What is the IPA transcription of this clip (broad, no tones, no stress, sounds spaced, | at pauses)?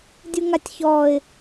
dʲ u ŋ a tʲ ç ɔː ɪ̯